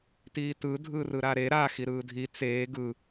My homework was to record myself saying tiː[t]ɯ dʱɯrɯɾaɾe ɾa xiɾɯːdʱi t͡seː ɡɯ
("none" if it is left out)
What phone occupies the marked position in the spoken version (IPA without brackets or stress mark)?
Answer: t